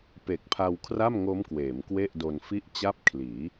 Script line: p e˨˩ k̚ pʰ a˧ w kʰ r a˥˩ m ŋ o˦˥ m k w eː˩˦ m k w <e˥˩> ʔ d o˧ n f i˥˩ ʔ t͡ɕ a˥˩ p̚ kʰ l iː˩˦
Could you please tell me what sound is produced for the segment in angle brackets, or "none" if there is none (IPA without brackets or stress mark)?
e˥˩